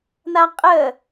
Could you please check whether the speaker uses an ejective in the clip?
yes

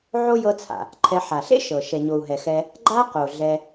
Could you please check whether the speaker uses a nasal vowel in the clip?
no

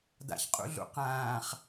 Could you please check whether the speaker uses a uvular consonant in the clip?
yes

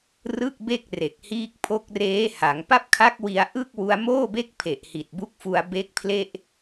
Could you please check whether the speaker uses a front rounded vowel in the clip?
no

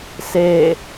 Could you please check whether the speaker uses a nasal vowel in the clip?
no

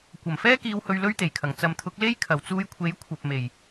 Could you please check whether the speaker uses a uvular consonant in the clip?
no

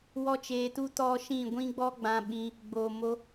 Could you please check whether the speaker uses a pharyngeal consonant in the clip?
no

